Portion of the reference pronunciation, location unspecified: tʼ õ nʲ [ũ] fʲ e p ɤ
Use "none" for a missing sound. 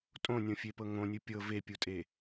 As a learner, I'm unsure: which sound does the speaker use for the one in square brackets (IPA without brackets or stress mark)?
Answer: õ